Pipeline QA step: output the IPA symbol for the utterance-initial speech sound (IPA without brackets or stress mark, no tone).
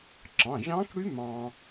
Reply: ǁ